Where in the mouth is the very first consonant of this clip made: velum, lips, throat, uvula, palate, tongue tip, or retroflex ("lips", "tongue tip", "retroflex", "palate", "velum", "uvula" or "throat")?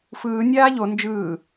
lips